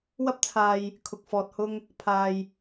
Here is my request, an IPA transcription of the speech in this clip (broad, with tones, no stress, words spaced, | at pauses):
wɐ˥p̚t͡sʰaː˧j | kʰʊ˨k̚fɔː˨t̚hʊ˧ŋ | pʰaː˨j